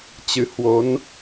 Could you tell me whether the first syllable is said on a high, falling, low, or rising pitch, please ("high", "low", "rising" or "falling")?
rising